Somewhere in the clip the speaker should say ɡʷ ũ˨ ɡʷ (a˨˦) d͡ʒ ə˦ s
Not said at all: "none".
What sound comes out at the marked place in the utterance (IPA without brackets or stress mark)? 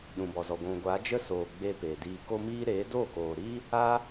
a˨˦